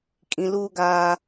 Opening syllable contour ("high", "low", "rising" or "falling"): high